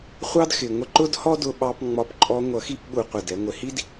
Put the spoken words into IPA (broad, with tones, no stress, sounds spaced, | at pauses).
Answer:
χʷ ɑ˦ d x ɪ˨ ŋʷ ə˧ ǃ ʊ˦ d h ɔ˦ d ʊ˧ ɓ ɑ˧ p ŋ͡m ɒ˨˦ p ǃʼ ɔ˧ ŋʷ ʌ˨˦ x i˧ p ɓ u˧ qʷ ɪ˨ d ɛ˧ ŋʷ ɪ˨ h i˦ d